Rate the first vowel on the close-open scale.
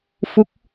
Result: close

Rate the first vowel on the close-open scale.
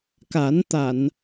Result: open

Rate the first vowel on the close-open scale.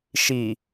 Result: close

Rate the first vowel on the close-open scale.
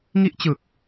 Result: close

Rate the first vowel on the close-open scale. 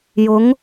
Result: close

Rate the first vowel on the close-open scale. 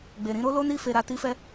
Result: mid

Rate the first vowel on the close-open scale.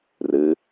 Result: close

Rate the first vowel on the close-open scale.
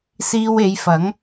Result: close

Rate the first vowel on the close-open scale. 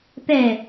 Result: mid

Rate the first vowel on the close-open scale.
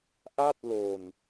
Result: open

